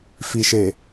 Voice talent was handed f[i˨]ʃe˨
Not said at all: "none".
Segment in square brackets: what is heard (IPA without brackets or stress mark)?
i˨